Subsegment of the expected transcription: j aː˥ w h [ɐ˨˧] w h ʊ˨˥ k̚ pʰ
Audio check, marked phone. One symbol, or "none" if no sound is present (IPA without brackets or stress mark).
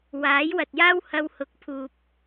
ɐ˧